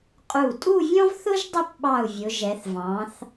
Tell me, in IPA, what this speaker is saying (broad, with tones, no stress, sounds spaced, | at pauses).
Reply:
qʼ u˧˩ tʼ u˥˧ vʲ ɔ̃˥ v θ ʊ˥ ʒ dˤ ʊ˥˧ p ɓ ɑ˧˩ u̯ vʲ ʊ˩˧ ʒ ɛ˩˧ θ v ɑ̃˩˧ θ